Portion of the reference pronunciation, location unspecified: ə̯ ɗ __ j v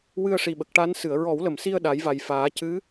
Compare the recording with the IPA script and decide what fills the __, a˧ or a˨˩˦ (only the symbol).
a˨˩˦